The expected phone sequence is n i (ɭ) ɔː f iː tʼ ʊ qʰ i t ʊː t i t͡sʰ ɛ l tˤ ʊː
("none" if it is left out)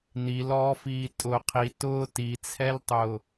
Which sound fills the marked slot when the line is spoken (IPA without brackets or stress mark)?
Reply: l